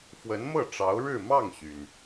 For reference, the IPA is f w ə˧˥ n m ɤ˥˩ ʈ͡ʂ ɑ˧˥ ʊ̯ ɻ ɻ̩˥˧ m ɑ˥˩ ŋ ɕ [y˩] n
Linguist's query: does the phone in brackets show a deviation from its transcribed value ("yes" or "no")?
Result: no